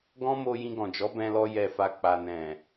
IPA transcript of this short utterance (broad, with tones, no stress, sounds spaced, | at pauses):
ɡ ɔ̃˦ m o˧ j ĩ˧ ɡ ɔ̃˨ d͡ʒ ɔ˨˦ b ɛ̃˧ l ɔ˧ j ɛ˨ f a˨ k͡p a˨ n ɛ̃˨